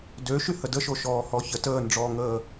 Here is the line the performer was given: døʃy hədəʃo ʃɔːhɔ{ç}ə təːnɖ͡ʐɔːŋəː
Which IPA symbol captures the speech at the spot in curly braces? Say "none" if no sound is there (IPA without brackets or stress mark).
ç